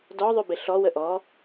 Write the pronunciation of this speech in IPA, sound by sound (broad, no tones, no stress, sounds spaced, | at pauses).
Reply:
d ɔ ðˤ y b ɪ ɬ ɔ w ə ʔ ɔ